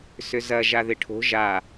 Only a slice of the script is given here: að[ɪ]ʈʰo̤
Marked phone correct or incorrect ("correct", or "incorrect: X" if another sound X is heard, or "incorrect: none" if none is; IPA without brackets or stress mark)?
correct